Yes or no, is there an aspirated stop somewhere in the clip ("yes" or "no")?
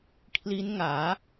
yes